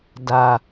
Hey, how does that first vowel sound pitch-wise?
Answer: low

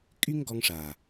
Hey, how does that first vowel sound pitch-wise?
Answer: high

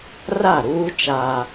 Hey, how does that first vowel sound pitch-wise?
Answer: falling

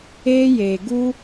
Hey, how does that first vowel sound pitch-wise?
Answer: high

